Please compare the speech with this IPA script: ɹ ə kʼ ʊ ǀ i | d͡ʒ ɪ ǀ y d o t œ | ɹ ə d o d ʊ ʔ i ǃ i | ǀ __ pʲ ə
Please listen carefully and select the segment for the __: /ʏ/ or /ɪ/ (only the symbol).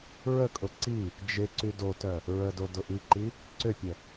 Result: ʏ